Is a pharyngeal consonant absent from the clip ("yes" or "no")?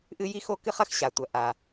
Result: yes